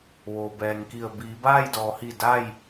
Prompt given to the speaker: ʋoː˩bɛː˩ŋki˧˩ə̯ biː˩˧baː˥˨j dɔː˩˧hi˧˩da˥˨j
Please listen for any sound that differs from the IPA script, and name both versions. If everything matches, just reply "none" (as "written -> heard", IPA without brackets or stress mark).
none